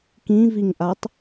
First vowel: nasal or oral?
nasal